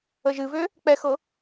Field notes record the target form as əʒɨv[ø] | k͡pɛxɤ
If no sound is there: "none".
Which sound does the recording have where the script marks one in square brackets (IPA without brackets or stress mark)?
ø